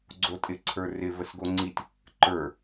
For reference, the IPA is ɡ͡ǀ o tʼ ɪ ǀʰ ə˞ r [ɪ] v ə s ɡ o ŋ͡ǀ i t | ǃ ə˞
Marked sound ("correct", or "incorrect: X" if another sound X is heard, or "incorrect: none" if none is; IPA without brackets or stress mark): correct